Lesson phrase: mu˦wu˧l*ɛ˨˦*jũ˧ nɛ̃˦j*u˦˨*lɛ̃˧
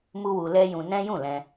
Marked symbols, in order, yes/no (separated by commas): no, no